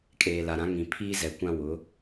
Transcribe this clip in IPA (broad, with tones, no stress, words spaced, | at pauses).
kʼeː˨la˨ɾã˨˦ ŋĩ˨pʰiː˦zɛ˨kʷã˦ wʊ˨˦